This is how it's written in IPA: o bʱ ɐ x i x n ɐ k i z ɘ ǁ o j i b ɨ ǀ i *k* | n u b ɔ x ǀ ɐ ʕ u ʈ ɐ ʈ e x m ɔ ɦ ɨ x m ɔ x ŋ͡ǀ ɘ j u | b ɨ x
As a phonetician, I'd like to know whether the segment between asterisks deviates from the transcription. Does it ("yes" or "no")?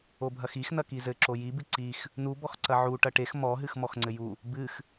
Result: yes